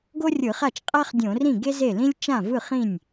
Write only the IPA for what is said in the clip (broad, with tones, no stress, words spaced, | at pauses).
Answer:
ɡo˥rʲɯ˧˩˧χa˥˩t͡ʃ qʼa˥χdʲõ˧˩˧rĩ˥˩ ɡe˥ze˥˩lĩ˥lʲ t͡ʃã˥˩vɯ˥˩χĩ˥˩nʲ